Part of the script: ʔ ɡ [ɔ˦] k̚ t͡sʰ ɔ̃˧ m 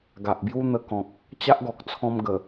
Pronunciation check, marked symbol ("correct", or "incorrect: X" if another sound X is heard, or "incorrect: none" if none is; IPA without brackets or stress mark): incorrect: ɔ˨